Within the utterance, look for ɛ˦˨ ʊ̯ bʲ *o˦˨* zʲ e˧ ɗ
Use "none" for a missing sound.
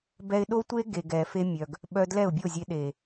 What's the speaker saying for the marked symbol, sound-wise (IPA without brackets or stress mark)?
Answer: o˦˨